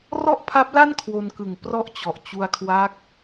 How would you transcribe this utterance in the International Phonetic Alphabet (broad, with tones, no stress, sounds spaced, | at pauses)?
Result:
r ɔ˥˩ ʔ pʰ a˦˥ p̚ l a˥˩ n kʰ w o˧ n k ɯ˨˩ ŋ p r ɔ˥˩ ʔ t͡ɕ ɔ˨˩ ʔ t͡ɕ u˧ a̯ kʰ w a˦˥ k̚